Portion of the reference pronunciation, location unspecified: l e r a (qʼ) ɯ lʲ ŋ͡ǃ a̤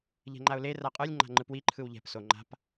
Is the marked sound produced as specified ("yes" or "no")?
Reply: yes